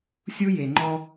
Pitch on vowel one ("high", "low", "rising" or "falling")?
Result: high